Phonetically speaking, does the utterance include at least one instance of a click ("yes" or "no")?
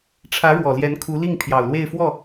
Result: no